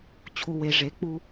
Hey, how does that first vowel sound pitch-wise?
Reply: low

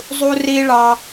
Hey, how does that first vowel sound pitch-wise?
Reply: high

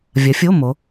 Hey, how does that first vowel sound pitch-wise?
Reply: rising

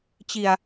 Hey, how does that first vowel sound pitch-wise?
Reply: low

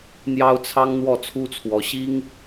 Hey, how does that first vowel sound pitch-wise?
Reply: high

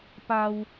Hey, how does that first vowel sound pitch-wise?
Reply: high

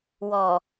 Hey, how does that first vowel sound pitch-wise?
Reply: low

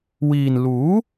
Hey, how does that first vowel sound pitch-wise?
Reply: low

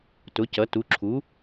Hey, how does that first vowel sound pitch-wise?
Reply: rising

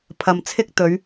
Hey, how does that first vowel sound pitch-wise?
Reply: low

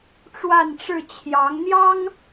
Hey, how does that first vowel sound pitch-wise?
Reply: falling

